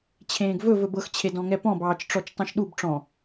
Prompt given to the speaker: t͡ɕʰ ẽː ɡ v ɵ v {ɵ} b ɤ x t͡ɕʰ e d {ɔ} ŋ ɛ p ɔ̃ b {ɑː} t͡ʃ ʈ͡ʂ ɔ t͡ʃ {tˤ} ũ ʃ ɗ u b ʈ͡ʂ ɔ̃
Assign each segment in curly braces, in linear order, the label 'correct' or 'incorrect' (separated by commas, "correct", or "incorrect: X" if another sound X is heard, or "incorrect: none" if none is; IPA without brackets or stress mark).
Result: correct, incorrect: ɔ̃, correct, correct